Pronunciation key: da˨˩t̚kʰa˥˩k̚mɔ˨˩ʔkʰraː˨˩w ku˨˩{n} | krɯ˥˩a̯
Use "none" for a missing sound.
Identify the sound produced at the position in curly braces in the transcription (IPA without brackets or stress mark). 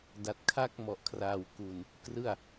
n